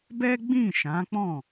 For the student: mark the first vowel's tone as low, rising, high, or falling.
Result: high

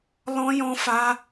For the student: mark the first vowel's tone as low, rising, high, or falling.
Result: high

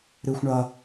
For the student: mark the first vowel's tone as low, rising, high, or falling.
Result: high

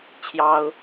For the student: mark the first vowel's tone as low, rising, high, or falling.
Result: high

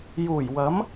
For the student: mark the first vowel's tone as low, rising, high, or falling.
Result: low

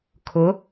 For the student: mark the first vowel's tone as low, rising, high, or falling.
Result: rising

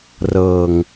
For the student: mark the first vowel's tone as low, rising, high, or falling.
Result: low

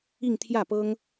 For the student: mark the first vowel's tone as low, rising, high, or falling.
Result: falling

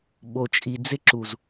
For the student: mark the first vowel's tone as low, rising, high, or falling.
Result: low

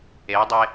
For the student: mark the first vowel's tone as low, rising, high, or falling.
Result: rising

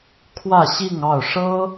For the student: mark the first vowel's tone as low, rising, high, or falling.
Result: falling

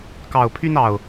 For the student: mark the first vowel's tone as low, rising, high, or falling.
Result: low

